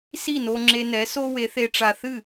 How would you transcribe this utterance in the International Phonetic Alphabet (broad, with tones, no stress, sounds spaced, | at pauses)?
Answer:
s i˥˩ n o˧ ŋ͡ǁ e˧ n ɛ˩˥ s o˥ w e˩˥ θ e˧ ʈ͡ʂ a˧ θ ɨ˥˩